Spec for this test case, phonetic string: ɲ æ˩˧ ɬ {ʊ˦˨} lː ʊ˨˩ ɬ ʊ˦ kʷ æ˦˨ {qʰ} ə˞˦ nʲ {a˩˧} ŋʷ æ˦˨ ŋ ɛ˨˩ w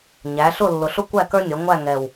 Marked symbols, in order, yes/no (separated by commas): yes, no, no